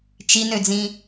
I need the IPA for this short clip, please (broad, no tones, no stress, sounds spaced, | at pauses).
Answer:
t͡ʃ i n ø d͡z ĩ